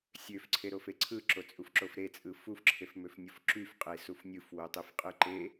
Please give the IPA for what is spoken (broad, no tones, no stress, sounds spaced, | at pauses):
sʲ ø f ǀʰ e ɾ o f e ǀʰ ɯ ǁ o t͡sʼ u f ǁ o f ɾ e t͡sʼ ɯ f u f ǁʰ e f m ø f nʲ o f ǁ y f qʼ e s u f nʲ ɯ f w o tˤ e f qʼ ɯ ǃ e